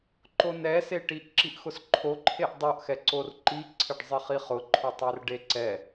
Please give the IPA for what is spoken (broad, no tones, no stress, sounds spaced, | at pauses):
ǃ o n ɛ s e ʈ i ʔ ǁ i ʔ x ʊ s ǃʰ o ǃʰ e ʔ dˤ o ʔ x ɛ ǀ o r ǃ i ǀʰ ɪ ɖ zˤ ɪ χ i χ ʊ ǃʰ ʊ tˤ ɛ r ɖ e ǀ ɛ